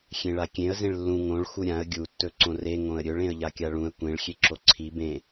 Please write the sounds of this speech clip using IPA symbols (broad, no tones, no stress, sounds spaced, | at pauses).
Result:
xʲ ẽ ɭ a kʲ ẽ ə̯ z ẽ ɭ lː ũ ŋ õ ɭ x u ɾʲ ã ə̯ ɡʲ u tː ɵ ǀ õ r e ŋ õ ə̯ ɾʲ ɵ ɭ ẽ ə̯ ʎ a kʲ a ɭ ũ ə̯ kʷ ẽ ɭ xʲ e ǁ o ǀʰ i b ẽ